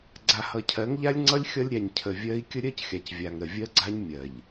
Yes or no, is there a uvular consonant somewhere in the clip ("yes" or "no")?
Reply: no